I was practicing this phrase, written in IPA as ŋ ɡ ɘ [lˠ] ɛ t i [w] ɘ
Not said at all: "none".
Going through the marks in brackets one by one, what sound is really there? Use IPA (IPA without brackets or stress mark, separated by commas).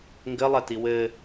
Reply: lˠ, w